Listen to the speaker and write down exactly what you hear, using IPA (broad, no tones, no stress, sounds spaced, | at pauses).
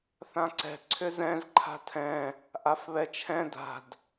θ ã ǀ ɛ̤ ǀʰ ʏ z ɛ̃ z ǃʰ a̤ tʰ ɛ̃ | ʔ a f β ɛ t͡ʃʰ ɛ̃ d a̤ d